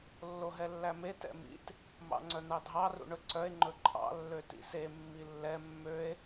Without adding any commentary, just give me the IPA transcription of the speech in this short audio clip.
lːoɦɛlːæme tɛ̰mḭt | mɑ̰ŋ͡ǀœn̪ɑdʱɑ rṵɳɵǀœe̯ ŋ͡ǃɵǃʼɑ̰ lːøtḭse mːilːɛ mːøe̯

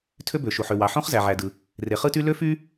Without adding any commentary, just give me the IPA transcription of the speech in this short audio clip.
tʰø˥bø˩ʃu˩ħ ø˩wɑ˩ ħõ˥χzæ˩ʕæ˩dɯ˩ | re˩χɯ˥ty˥ lø˥fy˥

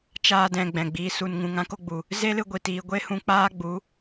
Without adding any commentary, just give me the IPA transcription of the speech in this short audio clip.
t͡ʃaː˧dɛ̃˨ ɡ͡bɛ̃˨ɡ͡biː˧su˧nŋũ˧ŋ ã˦ko˧ɡ͡bu˨ | ze˦lɨ˧ɡʷi˨ tiː˨ɡʷe˦hũ˧k͡paː˦ ɡ͡bu˨˦

